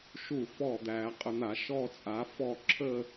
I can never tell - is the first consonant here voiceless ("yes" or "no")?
yes